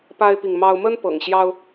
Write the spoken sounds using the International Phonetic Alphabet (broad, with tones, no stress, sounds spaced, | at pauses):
p a˦ ɪ̯ p i˨ ŋ m ɑ˦ ʊ̯ m ə˦ n p ɤ̰˨˩ ŋ ɕ j ɑ˦ ʊ̯